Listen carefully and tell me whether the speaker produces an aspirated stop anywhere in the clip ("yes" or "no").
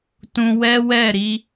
no